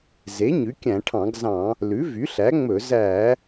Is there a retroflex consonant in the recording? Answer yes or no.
yes